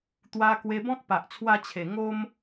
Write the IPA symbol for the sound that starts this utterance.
t̪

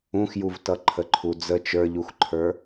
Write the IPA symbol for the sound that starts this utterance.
ũ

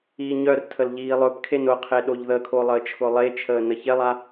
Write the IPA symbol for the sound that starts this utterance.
iː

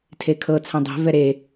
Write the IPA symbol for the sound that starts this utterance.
tʰ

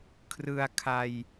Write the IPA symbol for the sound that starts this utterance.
kʰ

